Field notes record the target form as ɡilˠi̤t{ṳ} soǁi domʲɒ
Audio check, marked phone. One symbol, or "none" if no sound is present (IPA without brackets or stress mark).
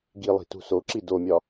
ṳ